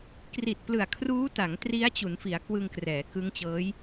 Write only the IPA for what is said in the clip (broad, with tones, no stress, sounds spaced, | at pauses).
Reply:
k r i˨˩ t̚ p l ɯ˨˩ a̯ kʰ r uː˦˥ t a˩˦ ŋ t r i˦˥ a̯ t͡ɕ u˩˦ n f i˩˦ a̯ k w ɯ˧ ŋ k r ɛː˩˦ k ɯ˦˥ ŋ t͡ɕ ɤː˦˥ j